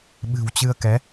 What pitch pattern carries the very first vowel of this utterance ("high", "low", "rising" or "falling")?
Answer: low